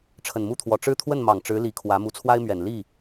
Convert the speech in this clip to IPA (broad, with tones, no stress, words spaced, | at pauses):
ʈ͡ʂʰə˨˩nmu˥˩t̪ʰwɔ˨˩ ʈ͡ʂɻ̩˥˧t̪ʰwə˥˩nmɑ˨˩ŋ ʈ͡ʂɻ̩˧˥ li˧˥kʰwä˧˥ mu˧˥t͡sʰwa˥ɪ̯mɥɛ˨˩n li˥˩